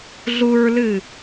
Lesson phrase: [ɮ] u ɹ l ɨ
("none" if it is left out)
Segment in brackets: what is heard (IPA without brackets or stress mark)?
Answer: ɮ